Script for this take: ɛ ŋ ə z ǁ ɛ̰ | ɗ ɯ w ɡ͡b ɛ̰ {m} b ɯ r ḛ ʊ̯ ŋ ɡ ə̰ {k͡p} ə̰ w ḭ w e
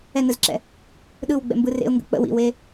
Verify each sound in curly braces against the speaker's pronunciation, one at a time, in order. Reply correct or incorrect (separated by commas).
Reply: correct, correct